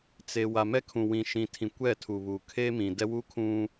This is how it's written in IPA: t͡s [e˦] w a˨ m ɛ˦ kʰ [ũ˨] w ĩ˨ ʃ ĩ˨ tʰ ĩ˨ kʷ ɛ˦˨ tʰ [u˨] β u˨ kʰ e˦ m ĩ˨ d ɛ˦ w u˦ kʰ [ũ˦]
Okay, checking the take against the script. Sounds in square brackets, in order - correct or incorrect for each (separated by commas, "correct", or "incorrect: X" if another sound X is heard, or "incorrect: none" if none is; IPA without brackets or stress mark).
incorrect: e˨, correct, correct, correct